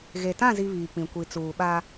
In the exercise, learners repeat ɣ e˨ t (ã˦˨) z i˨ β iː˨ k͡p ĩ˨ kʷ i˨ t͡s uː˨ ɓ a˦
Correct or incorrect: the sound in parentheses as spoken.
correct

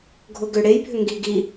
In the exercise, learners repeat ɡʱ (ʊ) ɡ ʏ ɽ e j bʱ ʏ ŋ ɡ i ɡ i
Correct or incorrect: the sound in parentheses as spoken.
correct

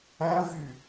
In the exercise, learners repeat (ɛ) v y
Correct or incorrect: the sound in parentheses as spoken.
incorrect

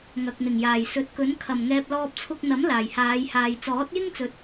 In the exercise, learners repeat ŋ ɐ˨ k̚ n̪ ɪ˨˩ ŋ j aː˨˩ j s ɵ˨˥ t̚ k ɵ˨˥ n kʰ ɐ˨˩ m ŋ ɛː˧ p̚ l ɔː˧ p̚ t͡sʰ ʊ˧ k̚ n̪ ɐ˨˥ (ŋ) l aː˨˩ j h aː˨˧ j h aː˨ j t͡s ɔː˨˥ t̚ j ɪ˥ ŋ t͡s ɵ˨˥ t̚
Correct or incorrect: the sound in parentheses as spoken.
incorrect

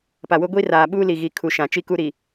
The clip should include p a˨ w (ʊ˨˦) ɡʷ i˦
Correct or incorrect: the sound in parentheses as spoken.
incorrect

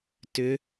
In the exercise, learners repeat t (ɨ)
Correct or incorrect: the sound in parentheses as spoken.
incorrect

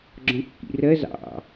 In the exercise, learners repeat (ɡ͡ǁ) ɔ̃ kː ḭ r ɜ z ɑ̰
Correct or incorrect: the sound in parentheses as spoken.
correct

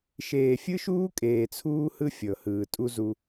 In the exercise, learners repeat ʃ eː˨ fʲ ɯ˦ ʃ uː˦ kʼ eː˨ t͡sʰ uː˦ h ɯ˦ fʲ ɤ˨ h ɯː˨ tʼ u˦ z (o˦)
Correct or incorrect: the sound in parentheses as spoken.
incorrect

